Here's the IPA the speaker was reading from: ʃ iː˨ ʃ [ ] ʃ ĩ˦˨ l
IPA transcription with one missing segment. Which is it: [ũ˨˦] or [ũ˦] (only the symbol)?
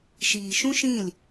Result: ũ˦